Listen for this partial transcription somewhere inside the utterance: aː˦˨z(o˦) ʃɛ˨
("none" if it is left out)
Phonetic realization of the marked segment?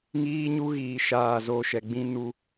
o˦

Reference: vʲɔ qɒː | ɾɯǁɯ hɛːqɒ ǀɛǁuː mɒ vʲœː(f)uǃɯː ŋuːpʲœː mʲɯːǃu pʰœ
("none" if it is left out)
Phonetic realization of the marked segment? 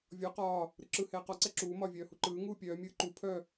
h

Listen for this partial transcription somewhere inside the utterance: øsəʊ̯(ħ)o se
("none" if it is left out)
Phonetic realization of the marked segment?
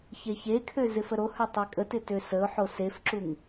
ħ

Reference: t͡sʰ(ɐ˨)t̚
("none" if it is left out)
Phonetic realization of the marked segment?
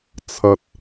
ɐ˨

